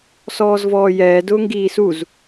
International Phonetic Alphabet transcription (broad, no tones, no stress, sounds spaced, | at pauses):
s ɔː z v ɔː j ɛː d ʊː ŋ ɡ iː s u z